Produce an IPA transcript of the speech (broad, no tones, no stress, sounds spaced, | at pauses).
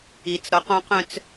i t͡s ɾ ɔ q ɔ̃ q œ̃ t͡s